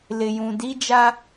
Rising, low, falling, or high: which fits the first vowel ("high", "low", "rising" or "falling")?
low